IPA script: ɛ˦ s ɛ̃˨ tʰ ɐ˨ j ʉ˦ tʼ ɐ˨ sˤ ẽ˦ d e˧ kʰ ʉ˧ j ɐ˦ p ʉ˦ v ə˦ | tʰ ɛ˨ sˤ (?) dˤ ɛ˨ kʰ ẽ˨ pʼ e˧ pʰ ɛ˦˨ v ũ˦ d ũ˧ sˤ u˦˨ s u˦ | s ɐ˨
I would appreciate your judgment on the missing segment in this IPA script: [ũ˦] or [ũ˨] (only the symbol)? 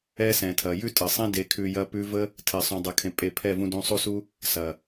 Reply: ũ˨